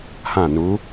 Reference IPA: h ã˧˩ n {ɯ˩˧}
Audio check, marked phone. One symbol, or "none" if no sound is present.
u˩˧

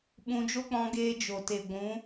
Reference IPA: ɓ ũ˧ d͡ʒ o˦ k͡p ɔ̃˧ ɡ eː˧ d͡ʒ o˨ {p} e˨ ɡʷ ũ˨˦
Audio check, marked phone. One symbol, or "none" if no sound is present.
t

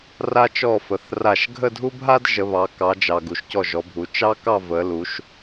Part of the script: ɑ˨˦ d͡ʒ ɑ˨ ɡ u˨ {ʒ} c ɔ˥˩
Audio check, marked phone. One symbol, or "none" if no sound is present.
ʃ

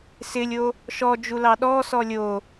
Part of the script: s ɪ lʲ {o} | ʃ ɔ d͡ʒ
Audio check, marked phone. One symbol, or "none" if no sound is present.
o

